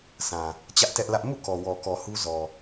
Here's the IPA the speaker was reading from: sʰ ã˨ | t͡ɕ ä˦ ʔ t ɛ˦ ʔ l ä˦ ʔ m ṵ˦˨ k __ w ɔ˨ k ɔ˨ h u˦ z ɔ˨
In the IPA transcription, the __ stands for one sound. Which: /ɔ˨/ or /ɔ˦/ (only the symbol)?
ɔ˨